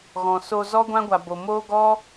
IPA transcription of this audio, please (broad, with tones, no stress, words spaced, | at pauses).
ɣɔ̃˨so˧zɔ˦ɡʷã˦ ɡʷa˨bo˨moː˦ ɡɔ˦